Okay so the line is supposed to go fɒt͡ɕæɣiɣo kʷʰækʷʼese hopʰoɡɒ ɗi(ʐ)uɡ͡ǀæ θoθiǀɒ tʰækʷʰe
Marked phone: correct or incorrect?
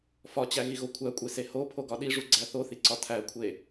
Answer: correct